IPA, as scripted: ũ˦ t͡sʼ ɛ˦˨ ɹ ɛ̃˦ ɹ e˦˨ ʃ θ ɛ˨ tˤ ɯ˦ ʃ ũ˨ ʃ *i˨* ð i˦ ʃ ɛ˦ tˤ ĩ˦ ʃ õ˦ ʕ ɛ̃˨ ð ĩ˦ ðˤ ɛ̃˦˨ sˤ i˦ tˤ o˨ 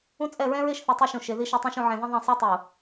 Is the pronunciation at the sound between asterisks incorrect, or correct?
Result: incorrect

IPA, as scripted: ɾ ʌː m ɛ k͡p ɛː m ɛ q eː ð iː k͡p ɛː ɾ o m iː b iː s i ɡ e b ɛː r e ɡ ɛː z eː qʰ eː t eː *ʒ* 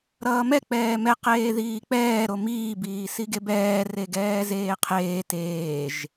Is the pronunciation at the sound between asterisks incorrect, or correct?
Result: correct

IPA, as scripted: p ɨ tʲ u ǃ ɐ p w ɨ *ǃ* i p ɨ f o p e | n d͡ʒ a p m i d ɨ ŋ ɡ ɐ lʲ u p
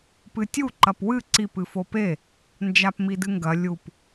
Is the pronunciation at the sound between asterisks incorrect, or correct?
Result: incorrect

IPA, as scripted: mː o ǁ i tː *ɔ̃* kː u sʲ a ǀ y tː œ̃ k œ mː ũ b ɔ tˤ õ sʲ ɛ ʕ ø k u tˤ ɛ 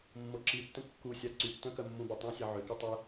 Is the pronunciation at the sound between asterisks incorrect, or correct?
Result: incorrect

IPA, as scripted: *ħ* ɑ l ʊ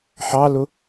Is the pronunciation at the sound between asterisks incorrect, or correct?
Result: correct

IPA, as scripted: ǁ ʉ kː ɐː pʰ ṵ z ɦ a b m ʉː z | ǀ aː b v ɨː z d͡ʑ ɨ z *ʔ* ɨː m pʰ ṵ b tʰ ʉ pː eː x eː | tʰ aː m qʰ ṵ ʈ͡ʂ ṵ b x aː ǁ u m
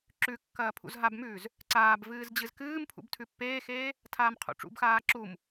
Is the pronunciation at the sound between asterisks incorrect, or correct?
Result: incorrect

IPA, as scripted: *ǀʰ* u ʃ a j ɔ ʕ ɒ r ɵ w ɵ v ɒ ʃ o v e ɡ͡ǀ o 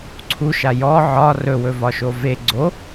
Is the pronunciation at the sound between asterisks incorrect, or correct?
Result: correct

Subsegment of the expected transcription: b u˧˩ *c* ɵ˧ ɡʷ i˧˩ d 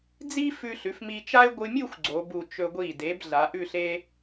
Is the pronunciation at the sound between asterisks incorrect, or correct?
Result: incorrect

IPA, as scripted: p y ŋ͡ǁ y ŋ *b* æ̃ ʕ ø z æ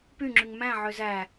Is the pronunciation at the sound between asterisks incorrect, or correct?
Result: incorrect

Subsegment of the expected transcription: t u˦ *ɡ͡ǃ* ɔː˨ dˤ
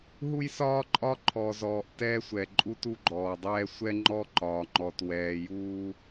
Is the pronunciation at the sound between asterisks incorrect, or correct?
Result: correct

